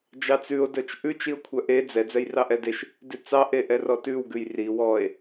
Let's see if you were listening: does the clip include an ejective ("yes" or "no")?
no